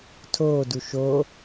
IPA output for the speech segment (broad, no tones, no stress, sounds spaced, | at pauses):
tʰ oː d u ʃ o